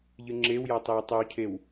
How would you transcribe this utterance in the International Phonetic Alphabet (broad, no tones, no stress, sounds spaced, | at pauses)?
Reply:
ʎ ɨ ŋ͡ǁ e w j a tˤ e w tˤ ɐ w cʰ e w